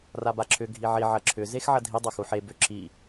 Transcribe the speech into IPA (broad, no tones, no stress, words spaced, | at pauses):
rabaǁʰʏ ɡʱiʕi ʕɐǁʰʏ zexʕɐdʱi dˤɐxuħe bʏ ǁʰi